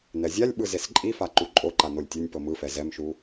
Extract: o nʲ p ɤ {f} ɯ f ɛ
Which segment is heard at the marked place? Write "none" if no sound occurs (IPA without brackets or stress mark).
m